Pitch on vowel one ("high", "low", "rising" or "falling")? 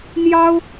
high